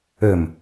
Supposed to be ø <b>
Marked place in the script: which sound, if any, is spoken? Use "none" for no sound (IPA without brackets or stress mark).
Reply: m